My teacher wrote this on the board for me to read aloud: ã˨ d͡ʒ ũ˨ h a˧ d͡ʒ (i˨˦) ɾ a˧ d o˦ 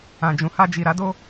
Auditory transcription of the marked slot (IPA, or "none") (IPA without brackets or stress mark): i˨